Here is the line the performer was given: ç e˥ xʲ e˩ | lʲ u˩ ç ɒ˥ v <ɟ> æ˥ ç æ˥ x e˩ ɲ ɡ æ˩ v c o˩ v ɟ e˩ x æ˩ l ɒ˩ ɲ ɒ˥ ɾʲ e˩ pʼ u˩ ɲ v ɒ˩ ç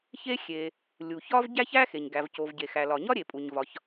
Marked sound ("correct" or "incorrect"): correct